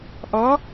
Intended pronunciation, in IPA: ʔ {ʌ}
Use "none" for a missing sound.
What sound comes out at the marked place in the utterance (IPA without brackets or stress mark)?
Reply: ʌ